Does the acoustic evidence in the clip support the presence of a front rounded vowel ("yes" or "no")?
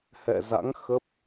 no